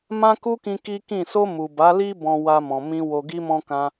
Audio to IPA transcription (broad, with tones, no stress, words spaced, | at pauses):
mã˦ku˦kĩ˧ ki˦kĩ˦˨ so˧ mu˨ba˨˦li˦ bɔ̃˧ wa˧ mɔ̃˨ mĩ˧ wo˧ɡi˦mɔ̃˦ kã˧